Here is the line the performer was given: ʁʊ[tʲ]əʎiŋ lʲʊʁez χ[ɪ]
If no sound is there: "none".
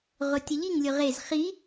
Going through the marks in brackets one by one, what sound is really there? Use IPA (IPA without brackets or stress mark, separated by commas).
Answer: tʲ, i